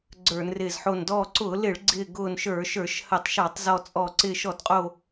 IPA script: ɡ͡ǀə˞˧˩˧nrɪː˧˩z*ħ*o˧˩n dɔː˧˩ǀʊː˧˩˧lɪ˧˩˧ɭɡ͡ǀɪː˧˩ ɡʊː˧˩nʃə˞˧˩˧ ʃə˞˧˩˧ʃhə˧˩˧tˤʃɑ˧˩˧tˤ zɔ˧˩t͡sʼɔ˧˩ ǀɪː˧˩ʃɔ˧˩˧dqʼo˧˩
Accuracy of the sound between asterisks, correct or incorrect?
correct